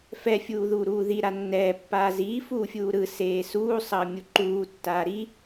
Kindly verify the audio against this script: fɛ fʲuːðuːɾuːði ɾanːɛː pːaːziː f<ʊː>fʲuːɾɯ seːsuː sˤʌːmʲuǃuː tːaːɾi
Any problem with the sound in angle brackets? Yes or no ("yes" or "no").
yes